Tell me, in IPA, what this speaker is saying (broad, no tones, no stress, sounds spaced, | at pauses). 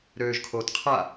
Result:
ɾ øː ʒ kʰ oː t qʰ a